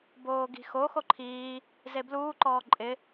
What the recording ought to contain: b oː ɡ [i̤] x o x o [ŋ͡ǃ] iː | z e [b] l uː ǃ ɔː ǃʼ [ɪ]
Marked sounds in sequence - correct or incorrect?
correct, incorrect, correct, correct

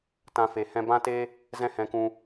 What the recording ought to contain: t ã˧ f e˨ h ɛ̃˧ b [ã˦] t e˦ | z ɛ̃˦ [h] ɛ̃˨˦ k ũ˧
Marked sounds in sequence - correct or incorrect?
correct, correct

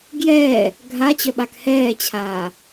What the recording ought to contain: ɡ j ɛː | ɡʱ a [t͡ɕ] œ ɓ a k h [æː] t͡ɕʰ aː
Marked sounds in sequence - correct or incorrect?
correct, incorrect

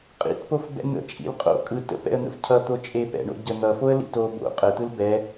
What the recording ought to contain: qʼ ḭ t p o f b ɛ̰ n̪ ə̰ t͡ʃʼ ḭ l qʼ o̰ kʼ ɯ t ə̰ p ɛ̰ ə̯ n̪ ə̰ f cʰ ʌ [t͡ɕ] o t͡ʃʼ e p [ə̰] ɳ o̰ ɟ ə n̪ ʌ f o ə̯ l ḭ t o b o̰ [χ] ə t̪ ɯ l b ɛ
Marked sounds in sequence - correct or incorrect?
incorrect, incorrect, incorrect

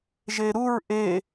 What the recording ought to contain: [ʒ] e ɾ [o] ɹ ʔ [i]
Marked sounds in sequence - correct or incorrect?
correct, incorrect, incorrect

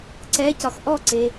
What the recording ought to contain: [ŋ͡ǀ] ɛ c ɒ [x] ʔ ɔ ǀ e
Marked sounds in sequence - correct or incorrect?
incorrect, correct

